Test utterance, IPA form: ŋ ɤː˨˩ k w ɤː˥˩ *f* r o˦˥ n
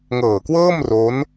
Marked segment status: incorrect: m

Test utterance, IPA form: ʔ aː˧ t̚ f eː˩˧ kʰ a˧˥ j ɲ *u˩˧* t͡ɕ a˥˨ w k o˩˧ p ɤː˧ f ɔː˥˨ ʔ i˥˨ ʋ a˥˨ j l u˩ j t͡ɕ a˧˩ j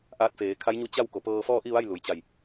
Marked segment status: incorrect: u˧˥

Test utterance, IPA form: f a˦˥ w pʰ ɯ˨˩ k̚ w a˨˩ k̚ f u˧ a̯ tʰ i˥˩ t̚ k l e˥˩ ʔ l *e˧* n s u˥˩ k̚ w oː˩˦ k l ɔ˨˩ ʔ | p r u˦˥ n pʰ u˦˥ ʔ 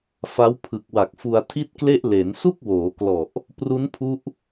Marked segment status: incorrect: e˩˦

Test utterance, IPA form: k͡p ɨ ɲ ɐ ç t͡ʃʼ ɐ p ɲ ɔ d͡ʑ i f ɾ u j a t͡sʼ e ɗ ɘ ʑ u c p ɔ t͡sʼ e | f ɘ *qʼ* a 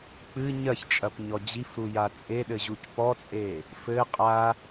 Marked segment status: correct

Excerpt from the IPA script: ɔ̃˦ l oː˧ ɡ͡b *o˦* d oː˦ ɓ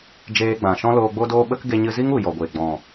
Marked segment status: correct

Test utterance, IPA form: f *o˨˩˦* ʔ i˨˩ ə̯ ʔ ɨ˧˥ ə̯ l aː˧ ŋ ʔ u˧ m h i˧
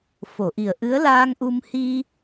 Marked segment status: incorrect: o˨˩˨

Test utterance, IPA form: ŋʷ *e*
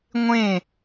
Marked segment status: incorrect: ẽ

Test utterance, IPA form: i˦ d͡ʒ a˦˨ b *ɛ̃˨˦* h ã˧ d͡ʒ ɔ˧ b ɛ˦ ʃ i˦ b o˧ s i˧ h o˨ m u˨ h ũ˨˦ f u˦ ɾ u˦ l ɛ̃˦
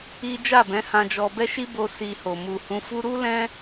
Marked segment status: correct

